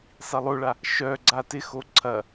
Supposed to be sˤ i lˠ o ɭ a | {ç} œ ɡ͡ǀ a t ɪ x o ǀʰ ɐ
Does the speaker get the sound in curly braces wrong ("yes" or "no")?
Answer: yes